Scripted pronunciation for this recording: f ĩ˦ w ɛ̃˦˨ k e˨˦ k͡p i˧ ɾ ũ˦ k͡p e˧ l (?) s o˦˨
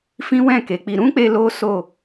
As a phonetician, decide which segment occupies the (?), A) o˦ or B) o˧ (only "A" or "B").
A